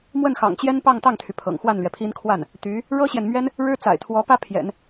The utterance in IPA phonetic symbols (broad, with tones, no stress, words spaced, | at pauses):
mwə˥˩nxɑ̰˨˩ŋt͡ɕjɛ˥n pɑ˥˧ŋt̪ɑ˥˩ŋt̪ʰy˩ pʰɤ̰˨˩ŋxwa˥˩nlɥɛ˩pʰi˥n kʰwa˥˩n | t̪y˧˥ | ɻɤ˥ɕjɛ˨nmɥɛ˥n | ɻɻ̩˥t͡sa̰˨˩ɪ̯t̪ʰwɔ˧˥pä˥ pʰjɛ̰˨˩˦n